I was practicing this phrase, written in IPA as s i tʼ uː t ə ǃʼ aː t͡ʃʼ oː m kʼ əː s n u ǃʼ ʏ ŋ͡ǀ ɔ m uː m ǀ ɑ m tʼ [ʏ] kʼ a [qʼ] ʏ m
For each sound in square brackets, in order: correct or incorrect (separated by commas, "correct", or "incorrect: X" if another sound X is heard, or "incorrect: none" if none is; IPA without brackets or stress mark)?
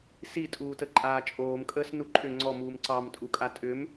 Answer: incorrect: u, incorrect: tʼ